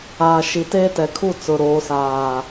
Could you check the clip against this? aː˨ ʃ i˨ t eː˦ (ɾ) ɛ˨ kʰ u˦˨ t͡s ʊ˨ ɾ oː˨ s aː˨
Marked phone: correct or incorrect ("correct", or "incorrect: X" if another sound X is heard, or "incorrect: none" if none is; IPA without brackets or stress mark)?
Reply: incorrect: t